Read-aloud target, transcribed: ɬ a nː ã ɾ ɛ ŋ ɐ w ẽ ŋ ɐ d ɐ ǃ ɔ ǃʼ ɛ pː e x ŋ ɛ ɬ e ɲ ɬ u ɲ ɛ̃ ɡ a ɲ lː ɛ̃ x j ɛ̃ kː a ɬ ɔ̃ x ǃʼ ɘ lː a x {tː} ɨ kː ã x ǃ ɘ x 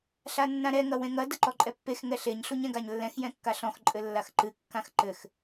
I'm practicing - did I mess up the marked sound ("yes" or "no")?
yes